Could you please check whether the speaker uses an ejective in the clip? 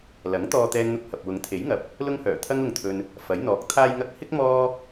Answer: no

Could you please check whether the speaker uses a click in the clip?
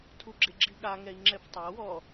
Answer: yes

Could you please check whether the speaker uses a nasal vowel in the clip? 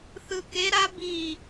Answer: no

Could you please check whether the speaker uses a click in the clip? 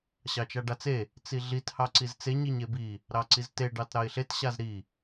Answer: yes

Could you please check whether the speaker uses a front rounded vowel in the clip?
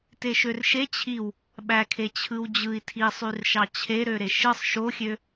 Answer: yes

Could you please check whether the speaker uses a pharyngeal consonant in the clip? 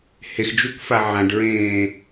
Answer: yes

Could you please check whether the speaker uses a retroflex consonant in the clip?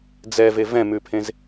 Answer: no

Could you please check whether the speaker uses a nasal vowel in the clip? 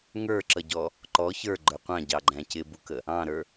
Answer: yes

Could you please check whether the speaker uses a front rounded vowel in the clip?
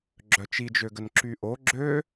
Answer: yes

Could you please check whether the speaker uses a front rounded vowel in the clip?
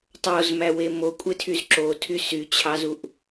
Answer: yes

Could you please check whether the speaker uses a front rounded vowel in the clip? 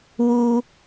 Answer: no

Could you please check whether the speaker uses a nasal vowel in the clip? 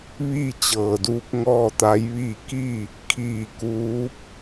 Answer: no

